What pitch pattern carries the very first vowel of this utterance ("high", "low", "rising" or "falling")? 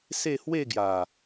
falling